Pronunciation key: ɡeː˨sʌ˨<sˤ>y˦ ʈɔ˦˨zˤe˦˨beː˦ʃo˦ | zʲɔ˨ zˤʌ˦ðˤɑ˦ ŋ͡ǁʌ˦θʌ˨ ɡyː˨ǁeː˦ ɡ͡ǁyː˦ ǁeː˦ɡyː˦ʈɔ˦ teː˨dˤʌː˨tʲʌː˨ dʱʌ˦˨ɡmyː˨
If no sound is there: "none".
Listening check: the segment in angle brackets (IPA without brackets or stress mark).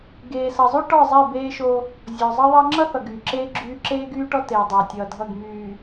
zˤ